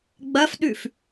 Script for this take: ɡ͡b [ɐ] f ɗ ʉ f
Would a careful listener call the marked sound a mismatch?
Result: no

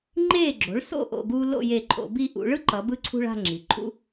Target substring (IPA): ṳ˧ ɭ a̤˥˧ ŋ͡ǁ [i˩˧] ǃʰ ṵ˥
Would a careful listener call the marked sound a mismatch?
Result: no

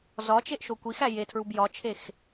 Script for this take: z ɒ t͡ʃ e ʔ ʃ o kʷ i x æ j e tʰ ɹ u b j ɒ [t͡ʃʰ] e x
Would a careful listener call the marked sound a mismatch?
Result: no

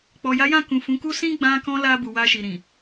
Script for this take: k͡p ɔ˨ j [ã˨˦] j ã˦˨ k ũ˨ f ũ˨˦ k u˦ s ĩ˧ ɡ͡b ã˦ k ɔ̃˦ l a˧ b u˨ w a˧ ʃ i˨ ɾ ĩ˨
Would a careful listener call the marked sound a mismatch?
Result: yes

